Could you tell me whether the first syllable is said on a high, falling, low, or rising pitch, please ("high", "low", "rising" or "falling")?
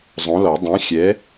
rising